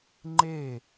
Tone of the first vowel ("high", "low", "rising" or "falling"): falling